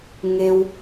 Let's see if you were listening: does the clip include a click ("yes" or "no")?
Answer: no